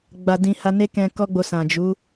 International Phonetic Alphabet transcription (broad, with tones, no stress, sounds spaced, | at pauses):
ɡ͡b a˨ d ĩ˨ h a˧ n e˦ k ɛ̃˧ k ɔ˦ ɡ͡b o˧ s ã˨ d͡ʒ u˨˦